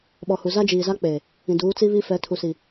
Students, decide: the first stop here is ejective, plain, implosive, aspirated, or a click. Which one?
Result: implosive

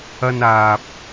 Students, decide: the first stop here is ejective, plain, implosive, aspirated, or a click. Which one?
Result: plain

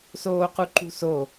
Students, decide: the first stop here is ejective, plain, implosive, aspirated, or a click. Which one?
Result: plain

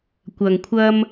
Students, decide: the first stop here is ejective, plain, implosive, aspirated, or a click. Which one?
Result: plain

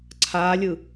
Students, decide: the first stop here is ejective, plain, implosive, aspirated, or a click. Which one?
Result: click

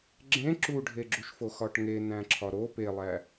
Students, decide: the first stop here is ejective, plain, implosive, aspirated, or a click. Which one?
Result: click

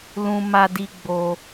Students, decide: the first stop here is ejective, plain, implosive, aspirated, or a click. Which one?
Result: plain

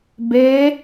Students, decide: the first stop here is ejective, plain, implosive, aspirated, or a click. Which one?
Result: plain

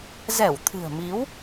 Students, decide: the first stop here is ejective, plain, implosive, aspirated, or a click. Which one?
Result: aspirated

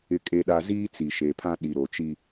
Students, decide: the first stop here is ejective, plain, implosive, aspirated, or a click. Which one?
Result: ejective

